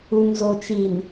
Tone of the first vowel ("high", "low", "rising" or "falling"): low